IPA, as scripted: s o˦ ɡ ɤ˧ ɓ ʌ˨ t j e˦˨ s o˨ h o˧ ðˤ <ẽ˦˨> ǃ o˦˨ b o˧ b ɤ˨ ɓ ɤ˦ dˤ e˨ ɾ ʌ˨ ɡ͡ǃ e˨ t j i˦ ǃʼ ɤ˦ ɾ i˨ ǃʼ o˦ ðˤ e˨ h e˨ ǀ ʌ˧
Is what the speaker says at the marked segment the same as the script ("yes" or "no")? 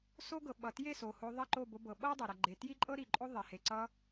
no